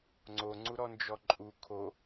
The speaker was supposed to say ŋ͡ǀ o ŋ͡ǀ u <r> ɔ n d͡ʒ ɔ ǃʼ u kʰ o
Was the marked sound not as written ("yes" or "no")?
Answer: yes